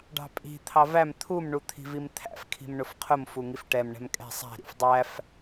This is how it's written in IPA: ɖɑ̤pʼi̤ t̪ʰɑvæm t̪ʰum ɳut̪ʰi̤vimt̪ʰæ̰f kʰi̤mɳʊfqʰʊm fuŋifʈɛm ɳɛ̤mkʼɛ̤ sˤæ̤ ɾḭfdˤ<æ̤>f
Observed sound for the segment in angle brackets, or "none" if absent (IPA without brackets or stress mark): æ